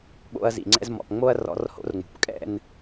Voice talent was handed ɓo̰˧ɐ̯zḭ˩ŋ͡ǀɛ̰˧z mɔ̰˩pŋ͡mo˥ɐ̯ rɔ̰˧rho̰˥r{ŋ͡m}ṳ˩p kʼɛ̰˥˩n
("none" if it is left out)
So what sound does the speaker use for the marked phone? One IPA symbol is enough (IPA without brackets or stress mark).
ŋ͡m